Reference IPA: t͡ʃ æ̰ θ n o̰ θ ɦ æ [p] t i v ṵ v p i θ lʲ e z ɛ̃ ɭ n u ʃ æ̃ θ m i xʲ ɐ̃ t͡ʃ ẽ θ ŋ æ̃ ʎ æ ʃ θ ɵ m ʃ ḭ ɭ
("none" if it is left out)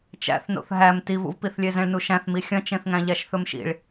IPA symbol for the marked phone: m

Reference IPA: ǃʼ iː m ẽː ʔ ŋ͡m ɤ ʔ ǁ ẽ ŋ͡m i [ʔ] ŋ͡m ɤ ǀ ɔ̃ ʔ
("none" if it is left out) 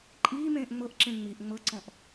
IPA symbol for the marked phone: ʔ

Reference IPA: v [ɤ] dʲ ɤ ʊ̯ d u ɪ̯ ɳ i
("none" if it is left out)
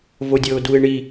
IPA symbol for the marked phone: o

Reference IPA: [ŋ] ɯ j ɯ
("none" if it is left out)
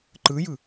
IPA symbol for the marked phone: ǃ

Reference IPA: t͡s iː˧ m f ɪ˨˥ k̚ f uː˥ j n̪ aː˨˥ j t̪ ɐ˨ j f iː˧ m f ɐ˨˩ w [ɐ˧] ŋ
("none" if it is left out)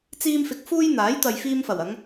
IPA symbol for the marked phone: ɐ˨˧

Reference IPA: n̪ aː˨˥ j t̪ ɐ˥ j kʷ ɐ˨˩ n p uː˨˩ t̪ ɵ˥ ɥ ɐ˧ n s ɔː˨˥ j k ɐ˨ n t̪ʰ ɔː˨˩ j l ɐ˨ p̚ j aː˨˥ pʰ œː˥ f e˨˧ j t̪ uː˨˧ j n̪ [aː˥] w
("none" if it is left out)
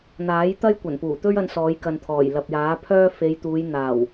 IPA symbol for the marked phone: aː˨˩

